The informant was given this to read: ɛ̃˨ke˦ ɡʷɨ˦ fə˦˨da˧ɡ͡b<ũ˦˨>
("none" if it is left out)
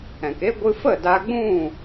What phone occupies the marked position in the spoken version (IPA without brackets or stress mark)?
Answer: ũ˦˨